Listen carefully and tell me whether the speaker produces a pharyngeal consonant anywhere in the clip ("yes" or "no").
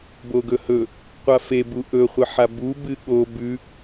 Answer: yes